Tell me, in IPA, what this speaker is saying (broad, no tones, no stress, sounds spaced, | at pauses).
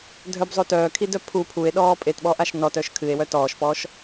dʱ œ b zˤ o t œː kʰ i d œ pʰ u pʰ u e̯ ɗ ɔː pʼ e t ɓ ɔ ʔ a ʃ n ɔ t œ ʃ kʰ ɨ e̯ w œ t ɔː ʃ p ɔː ʃ